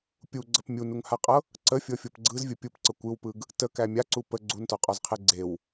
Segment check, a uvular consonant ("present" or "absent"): present